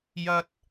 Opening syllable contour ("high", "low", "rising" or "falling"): high